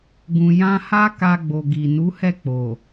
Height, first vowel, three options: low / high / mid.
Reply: high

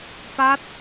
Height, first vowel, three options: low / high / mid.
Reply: low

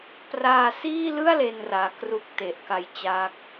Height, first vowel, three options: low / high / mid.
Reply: low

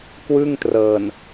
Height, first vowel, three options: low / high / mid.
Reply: high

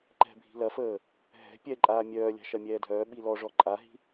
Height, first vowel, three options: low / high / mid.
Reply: mid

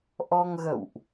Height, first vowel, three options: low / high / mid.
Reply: mid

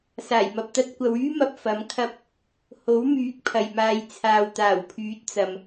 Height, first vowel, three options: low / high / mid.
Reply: low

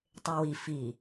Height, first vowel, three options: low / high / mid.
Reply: mid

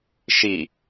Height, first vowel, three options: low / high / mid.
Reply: high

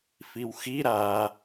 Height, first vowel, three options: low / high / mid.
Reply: high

